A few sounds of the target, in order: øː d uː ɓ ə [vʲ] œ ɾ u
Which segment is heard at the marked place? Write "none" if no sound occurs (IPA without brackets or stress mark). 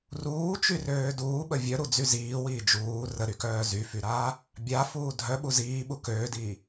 vʲ